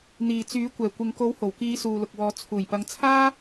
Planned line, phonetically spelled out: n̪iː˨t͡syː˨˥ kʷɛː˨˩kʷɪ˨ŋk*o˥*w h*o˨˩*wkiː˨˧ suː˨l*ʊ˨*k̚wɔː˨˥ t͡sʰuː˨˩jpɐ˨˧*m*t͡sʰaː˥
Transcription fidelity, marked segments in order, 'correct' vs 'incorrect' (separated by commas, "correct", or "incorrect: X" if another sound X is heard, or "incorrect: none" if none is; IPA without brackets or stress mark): incorrect: o˨˥, correct, correct, incorrect: ŋ